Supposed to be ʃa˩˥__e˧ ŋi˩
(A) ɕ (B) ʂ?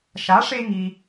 B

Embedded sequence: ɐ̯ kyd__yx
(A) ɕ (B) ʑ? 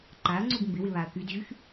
B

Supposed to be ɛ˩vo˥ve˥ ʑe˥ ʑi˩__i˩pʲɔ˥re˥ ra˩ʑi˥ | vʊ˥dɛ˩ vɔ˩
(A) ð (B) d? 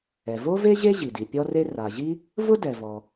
B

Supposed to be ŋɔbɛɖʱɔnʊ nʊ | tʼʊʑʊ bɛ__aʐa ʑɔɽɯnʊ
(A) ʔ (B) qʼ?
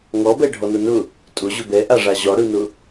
A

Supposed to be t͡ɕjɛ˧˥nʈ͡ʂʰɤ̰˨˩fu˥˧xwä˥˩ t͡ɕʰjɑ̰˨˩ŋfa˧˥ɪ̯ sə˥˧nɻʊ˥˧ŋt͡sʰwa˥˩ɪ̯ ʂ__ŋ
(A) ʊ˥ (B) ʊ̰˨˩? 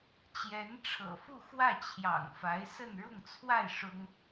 A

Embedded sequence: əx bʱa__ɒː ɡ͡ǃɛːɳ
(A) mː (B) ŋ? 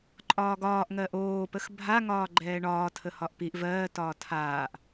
B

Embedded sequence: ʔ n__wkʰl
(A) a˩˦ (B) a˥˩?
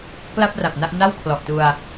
B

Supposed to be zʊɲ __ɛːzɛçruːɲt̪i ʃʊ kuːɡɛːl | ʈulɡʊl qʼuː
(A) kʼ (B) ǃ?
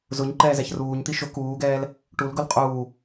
B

